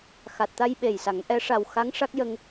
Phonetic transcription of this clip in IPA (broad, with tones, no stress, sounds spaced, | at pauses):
x a˨˩ t̚ t̪ a˧ j ɓ e˨˩ j s a˨˩˦ ŋ ʔ ɛ˧˥ ʂ a˨˩ w x a˧˥ ŋ ʂ a˦˥ k̚ j ə˧ ŋ